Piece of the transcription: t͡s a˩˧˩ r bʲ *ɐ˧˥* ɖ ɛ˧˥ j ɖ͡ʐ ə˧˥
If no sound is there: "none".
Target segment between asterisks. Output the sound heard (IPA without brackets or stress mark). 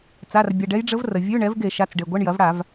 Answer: ɐ˩˧˩